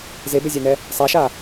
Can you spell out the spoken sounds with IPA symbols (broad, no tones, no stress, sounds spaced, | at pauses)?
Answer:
z e b e zʲ a n ɛ | sˤ a ʃ a